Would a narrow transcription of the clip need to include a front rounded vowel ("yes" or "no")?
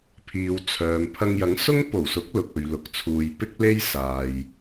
yes